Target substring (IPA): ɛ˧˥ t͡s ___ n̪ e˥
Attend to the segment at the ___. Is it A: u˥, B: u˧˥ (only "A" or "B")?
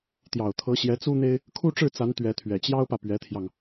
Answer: A